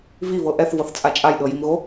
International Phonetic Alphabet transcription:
vivɤ ʔɛθvɤθt͡sʼa t͡ʃʼajɗɤjimɣo

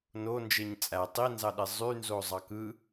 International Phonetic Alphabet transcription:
no nd͡ʒeɲt͡sʼæ tˤinzɑɗe zˤynzo zˤɑkɯ

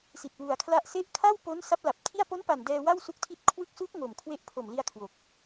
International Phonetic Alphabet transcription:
si˨˩t̚ wu˨˩a̯kʰla˥˩ʔ se˦˥ʔkʰa˥˩wpo˦˥n sa˦˥p̚la˨˩p̚tʰi˥˩a̯ po˦˥npa˨˩n dɛː˧wa˥˩wsu˦˥k̚tʰi˦˥t̚ kʰwɯ˦˥k̚su˦˥k̚ ŋo˨˩mkʰwe˦˥ʔ pʰo˨˩mli˧a̯ kʰwo˨˩k̚

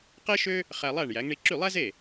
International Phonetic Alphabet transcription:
qe˥ʃø˥ | χæ˧lˠæ˥˩ɳ jæ˩˥ŋɳi˧ ǁy˥˩ lˠæ˥ze˥˩

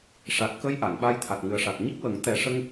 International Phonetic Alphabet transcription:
ʂa˨˩t̚kə˧j ʔa˨˩˨n ɓa˧jt̪ʰa˨˩t̚ŋɨ˨˩ə̯ʂa˨˩k̚ ɲə˦˥k̚wə˨˩˦ŋ t̪ɛ˨˩˦ ʂə˧ŋ

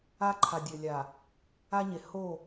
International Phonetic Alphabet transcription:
a˦ǃʰa˨ dʲɘ˨lʲa˨ | a˦ɲe˨ ho˦˨

